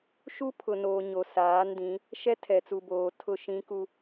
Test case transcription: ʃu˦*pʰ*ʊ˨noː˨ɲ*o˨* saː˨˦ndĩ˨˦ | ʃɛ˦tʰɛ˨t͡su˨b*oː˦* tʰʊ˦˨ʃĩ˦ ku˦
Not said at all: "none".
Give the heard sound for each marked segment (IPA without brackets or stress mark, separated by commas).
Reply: pʰ, o˨, oː˨